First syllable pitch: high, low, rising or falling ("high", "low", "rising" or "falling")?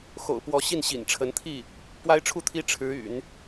low